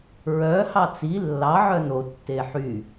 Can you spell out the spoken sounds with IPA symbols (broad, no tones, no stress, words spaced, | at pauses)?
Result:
ɹœhɑ t͡si lːɑʕœ notːe ħy